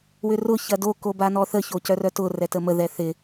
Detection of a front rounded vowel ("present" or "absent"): present